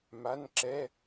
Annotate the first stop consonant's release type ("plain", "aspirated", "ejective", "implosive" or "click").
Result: click